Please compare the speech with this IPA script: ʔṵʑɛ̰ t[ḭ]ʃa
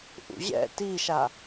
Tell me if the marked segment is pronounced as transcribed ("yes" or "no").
no